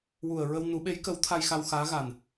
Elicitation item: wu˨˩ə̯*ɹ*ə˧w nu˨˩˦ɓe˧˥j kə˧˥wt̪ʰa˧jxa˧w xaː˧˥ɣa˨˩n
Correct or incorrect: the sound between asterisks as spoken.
correct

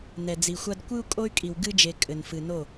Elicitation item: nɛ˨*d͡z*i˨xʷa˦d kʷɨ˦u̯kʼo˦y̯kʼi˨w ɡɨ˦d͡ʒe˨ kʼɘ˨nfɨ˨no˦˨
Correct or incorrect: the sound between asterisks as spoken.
correct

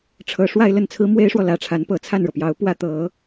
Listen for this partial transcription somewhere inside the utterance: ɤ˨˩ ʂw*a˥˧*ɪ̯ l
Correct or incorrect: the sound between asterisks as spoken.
correct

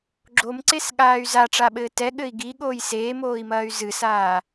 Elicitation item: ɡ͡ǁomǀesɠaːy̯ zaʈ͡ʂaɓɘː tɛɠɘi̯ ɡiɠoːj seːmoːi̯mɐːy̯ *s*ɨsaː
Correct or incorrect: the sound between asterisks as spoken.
incorrect: z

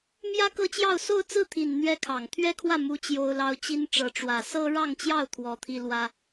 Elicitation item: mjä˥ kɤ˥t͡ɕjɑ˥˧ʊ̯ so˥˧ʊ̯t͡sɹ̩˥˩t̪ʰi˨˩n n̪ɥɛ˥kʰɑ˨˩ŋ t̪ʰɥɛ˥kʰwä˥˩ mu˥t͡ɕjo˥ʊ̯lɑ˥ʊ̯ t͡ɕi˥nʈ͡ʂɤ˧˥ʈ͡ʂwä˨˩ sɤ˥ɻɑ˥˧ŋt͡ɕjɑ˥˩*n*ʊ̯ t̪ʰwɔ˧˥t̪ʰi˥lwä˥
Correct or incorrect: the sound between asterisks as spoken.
incorrect: none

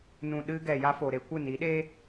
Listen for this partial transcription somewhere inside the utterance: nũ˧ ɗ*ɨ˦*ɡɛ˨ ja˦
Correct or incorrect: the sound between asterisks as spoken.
correct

